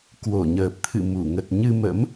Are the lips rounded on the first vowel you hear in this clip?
yes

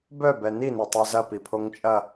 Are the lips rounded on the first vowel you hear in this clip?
yes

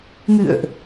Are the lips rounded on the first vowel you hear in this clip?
no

